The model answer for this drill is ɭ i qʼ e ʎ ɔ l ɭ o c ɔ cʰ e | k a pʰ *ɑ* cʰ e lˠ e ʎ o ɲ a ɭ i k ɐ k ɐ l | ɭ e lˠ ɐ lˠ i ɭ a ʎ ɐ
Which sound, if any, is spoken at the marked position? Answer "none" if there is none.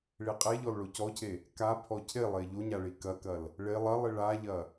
ɔ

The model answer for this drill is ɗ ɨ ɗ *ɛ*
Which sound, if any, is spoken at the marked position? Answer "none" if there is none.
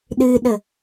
ə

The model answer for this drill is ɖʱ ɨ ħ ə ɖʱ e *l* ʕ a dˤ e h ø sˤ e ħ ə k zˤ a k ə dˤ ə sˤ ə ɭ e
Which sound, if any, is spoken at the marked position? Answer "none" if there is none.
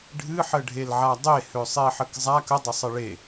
l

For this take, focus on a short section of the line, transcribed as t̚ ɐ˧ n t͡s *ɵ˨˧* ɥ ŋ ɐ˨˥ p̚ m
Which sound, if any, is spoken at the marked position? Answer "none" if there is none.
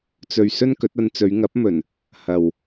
ɵ˨˧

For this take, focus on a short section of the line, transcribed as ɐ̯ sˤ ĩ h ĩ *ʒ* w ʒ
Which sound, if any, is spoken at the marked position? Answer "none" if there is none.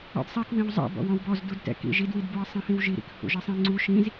none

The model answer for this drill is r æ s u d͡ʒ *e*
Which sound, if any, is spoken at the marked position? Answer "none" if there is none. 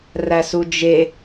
e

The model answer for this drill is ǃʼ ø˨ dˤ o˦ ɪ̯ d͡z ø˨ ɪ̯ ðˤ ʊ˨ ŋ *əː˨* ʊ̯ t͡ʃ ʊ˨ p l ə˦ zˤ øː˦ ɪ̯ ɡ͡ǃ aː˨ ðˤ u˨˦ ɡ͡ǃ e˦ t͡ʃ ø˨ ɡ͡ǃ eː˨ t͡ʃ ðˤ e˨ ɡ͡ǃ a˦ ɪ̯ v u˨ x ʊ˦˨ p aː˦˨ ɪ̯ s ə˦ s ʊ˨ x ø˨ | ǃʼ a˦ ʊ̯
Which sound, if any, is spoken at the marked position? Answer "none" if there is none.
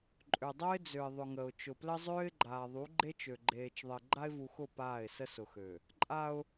ə˨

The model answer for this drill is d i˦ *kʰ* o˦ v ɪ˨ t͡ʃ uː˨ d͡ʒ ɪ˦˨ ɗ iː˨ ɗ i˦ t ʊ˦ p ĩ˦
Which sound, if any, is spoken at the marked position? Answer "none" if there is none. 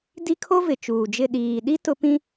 kʰ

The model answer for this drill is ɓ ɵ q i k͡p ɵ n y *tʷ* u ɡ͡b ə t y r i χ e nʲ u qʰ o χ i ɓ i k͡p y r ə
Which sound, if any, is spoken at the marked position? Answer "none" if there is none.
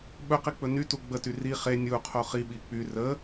t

